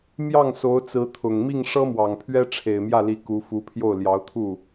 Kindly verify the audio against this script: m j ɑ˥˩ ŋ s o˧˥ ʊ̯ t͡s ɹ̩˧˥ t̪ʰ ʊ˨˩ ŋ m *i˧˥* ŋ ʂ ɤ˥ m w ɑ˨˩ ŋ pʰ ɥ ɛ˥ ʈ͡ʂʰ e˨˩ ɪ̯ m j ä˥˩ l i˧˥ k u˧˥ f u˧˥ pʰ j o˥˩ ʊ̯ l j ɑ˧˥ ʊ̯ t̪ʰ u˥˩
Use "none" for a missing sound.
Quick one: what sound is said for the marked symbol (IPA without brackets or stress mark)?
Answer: i˥˩